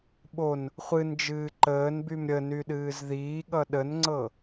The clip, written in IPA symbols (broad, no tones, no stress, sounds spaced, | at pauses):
ɓ o n | χʷ ɨ n d͡ʒ ɨː ǃ əː n b y m ɾʲ ə n y ɗ ɨː z ð iː ɠ ʌ ɗ ə n ŋ͡ǀ ɤ